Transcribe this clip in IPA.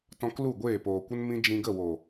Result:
t ɔ̃˧ k l u˦˨ ɡʷ eː˦˨ p oː˨ kʷ ə˦ n m ĩ˦ d͡ʒ ĩ˧ ɡ ə˦˨ w o˨

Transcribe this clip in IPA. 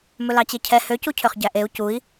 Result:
m ɵ l ɑ t͡ɕ e cʰ ɛ h ø c u cʰ ø χ ɟ æ ʔ e u̯ c u i̯

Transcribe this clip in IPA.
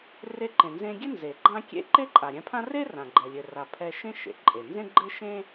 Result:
r e˧ ǃ ẽ˩ n z ẽ˧ ɡʲ ɘ˥ n z e˩ ɡ͡ǃ ã˥ kʲ ḛ˥ ǃ e˥ ǃʼ a˩ ɾʲ ɛ̃˧ pʰ ã˥ r e˥ r ã˩ ɡ͡ǃ ɛ˩ lʲ ɘ˩ r a˩ pʰ ɛ˧ ʃ ẽ˥ ʃ ḛ˩ ǃʼ e˩ n z ẽ˥ ɡ͡ǃ ɘ˥ ʃ ẽ˥

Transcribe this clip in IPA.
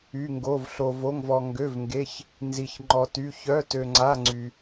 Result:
y˧˥˧ ŋ ɡ o˧˥˧ v ɬ o˧ v o˧˥˧ ŋ v ɔ˧ ŋ ɡ ø˧˥˧ v ŋ ɡ e˧˥˧ ç | n z i˧ ç ŋ͡ǃ ɔ˧ t y˧˥˧ ç œ˧˥˧ t ø˧ ŋ͡ǀ a˧˥˧ ŋ͡ǀ y˧

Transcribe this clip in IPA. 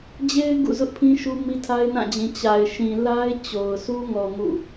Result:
d͡ʑ e˦ ɪ̯ ɡ ṵ˦˨ z ʊ˦ ʔ pʰ ĩ˦ ʃ u˦ m i˦ tʰ a˦ ɪ̯ n ã˦˨ d͡ʑ ĩ˨ t͡ɕ a˨ ɪ̯ ʃ ĩ˨ l a˦ ɪ̯ t͡ɕ o˨ ʊ̯ s u˦ ŋ ɔ˨ ŋ ṵ˦˨

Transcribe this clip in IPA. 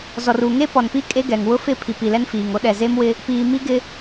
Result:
z ɔ˨ r u˨ ŋ e˦ p ɔ˨ n p i˦ kʼ e˦ ɡ ɛ˨ ŋ w ʊ˦ f ɪ˦˨ pʰ i˨ p i˨ l ɛ˦ n f iː˨ ŋ o˦ ɗ ɛ˨ z e˦ m w ɪ˦ | p iː˨ m i˦ ɡ ɪ˦

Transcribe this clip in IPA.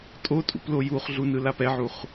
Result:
tʼ o tʼ ṵ p l o j u χ ɮ u n ɯ l a p ɛ ʕ u χ

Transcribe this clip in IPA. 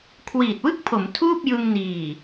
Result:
kʰ w iː˨˩ t̚ w ɯ˥˩ k̚ pʰ o˩˦ m tʰ uː˥˩ p̚ j ɯ˧ ŋ n iː˨˩

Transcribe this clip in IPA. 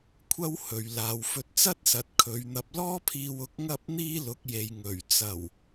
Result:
kʷʰ ɐ˥ w h ɵ˨ ɥ l aː˨ w f ɵ˧ t̚ t͡s ɐ˥ t̚ s ɐ˨ t̚ kʰ ɵ˨˧ ɥ n̪ ɐ˧ p̚ l ɔː˥ pʰ iː˧ w ʊ˨˥ k̚ ŋ ɐ˥ p̚ n̪ iː˥ l ʊ˨˥ k̚ j e˨ j ŋ ɵ˨˩ ɥ t͡s ɐ˨˩ w

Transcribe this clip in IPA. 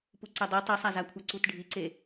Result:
p u ǀ ɛ dˤ i tˤ i sˤ a z a kʷʰ a ǀ u t ɖʱ i ǀ e

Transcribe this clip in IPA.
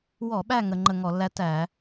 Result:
w ɔ˧˩˧ ɓ æ˦˨ ŋ ə˧˩˧ ŋ͡ǃ ə˦˨ ŋ ɔ˧˩˧ lː æ˥ t æ˧˩˧

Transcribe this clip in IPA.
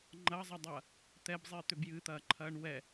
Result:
ŋ͡ǃ ɐ zˤ ɐ dˤ ɐ | t̪ ɛ b zˤ iː t̪ ø b j ɨ t̪ ɐː ǃʰ ɐː ɳ w ɛ

